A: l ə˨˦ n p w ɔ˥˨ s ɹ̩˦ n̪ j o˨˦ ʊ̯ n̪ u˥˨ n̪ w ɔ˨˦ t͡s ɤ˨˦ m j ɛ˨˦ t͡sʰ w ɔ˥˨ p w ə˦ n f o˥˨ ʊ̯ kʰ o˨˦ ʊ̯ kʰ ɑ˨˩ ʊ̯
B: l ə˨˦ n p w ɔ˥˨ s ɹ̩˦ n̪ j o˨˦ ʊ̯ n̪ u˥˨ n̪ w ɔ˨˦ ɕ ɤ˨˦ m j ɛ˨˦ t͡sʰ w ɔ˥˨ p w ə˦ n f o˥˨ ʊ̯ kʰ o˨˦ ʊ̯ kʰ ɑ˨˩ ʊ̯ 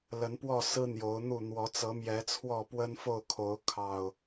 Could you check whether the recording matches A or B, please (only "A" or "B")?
A